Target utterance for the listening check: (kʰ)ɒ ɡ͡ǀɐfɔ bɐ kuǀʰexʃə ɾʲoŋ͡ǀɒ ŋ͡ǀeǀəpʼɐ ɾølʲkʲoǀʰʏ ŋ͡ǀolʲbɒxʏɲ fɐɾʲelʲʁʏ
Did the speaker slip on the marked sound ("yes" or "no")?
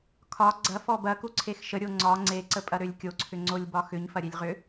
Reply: no